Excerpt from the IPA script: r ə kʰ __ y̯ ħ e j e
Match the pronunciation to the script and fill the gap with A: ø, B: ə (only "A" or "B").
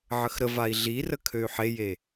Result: A